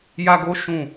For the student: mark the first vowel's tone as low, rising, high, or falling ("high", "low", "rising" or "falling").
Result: high